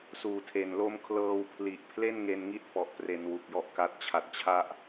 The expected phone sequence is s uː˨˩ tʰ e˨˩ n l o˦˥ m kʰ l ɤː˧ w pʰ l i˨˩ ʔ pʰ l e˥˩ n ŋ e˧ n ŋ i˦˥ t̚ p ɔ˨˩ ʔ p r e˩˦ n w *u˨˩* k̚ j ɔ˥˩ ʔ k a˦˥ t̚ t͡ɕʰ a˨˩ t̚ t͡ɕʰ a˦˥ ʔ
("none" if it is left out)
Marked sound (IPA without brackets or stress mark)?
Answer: u˨˩